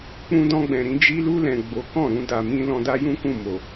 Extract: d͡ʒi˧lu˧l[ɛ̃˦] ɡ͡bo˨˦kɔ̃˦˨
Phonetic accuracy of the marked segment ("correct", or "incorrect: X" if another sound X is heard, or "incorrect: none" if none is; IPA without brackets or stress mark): incorrect: ɛ̃˨